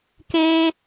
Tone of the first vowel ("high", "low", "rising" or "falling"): high